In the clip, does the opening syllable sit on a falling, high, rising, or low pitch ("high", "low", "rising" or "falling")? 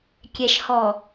low